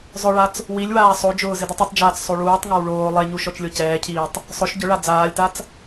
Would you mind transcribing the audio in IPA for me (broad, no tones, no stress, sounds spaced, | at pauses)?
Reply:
zˤ ʊ ɭ a t͡s | w i lʲ w aː sˤ o d͡ʒ ʊː z ɪ d i tˤ u tˤ d͡ʒ aː t͡s sˤ o ɭ uː tˤ ŋ a w ɭ oː lˠ e ɲ u ʃ ɔ t͡ʃ lʲ o c ɛː cʰ iː tˤ | sˤ ʊ ʃ ɟ ʊ ɭ a d͡z aː lʲ t a t͡s